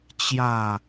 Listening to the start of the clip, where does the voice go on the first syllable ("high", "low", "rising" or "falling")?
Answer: falling